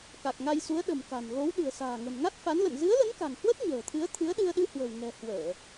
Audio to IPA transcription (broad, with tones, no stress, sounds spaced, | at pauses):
k a˨˩ k̚ ŋ a˧ j s u˨˦ ə̯ ɗ ə̤˨˩ m k a̤˨˩ n ɣ o˨˦ w ɗ ɨ̤˨˩ ə̯ s a̤ː˨˩ ŋ ə̤˨˩ n ŋ a˦˥ t̚ f a˨˦ n l ə̰˧˨ n z ɨ˨˦ ə̯ l ə˨˦ n k a̤˨˩ ŋ h w ə˦˥ t̚ ɲ ə̤ː˨˩ t̪ʰ ɨ˨˦ ə̯ t̪ʰ ɨ˨˦ ə̯ ɗ ɨ˧ ə̯ ɗ ɨ˧ h w ə̤˨˩ w ŋ ɛ̤˨˩ h w əː˧˩˨